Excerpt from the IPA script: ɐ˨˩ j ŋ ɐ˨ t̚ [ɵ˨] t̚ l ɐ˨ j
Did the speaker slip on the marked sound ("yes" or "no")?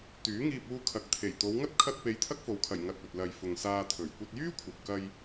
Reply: no